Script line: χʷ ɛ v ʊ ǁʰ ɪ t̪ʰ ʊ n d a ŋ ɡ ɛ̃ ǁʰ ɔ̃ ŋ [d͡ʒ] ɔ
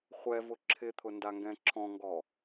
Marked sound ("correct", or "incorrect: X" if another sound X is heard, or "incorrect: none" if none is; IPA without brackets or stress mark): incorrect: ɡ